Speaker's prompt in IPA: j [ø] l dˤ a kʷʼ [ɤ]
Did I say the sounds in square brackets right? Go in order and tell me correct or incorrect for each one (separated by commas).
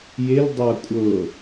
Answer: incorrect, correct